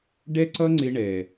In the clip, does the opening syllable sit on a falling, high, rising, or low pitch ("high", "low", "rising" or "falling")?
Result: high